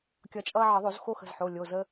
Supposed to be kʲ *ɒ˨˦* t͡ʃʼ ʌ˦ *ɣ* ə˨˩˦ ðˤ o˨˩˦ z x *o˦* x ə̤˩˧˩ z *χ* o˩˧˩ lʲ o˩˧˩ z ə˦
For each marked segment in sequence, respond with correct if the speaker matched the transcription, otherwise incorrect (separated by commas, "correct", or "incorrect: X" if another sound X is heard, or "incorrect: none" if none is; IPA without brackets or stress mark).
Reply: incorrect: ʌ˨˦, incorrect: ʕ, correct, incorrect: ħ